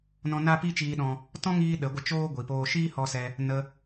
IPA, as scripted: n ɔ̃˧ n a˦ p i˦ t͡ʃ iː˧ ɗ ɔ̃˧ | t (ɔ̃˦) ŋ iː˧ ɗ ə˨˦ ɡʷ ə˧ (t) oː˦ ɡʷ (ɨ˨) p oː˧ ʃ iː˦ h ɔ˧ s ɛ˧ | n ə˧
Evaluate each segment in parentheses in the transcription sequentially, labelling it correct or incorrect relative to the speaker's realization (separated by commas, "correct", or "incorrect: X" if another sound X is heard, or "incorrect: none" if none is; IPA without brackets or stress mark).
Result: correct, incorrect: t͡ʃ, incorrect: i˨